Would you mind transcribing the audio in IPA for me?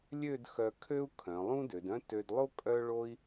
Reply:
lʲ ø˥˧ d x œ˧ kʰ ø˥ u̯ kʰ œ̃˩˧ lˠ ũ˥ d ø˩˧ d œ̃˥ t ø˧ d lˠ o˥ kʼ œ˥ ɭ o˧ i̯

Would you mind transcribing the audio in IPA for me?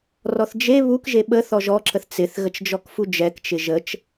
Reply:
r ɔ θ d͡ʒ e β u k ʒ e ɓ ə θ ɔ ʒ ɔ ǁ ə θ t͡s ɪ θ ɣ ə t͡ʃ d͡ʒ ɔ k f u d͡ʒ ɛ k t͡ʃ ɪ ʒ ə t͡ʃ

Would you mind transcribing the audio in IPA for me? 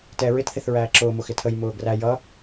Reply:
t ɛ ɹ ɪ t θ ɪ θ ɹ æː ǁ ʊː m ʊ x ɪ tʰ ə j m ʊː ɡ r æ j ʌ

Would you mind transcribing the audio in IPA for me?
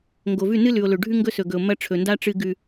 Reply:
ŋ ɡ o˨ v ʉ˦˨ n ɨ˦ l ʉ˨ o̯ l ɵ˨ ɖʱ ʉ˦ ŋ ɡ ɵ˦ s ɵ˨ ɡ ɵ˨ o̯ m ɐ˦ ʈ͡ʂʰ ɵ˨ n d a˦ ʈ͡ʂ ɨ˦ ɡ ʉ˦

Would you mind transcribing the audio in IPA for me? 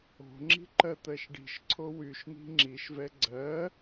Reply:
o̤ ŋ͡ǁ i̤ ǃ ɜ t̪ ɜ ʃ ɖ i̤ ʃ ǀʰ o w y ʃ n̪ i̤ ŋ͡ǁ i ʃ v ɛ ɡ͡ǀ ɜ

